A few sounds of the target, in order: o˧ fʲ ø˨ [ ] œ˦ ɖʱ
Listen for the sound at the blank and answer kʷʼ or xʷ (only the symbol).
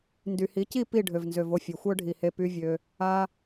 xʷ